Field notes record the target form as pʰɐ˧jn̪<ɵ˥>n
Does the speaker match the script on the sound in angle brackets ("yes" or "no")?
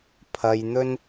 yes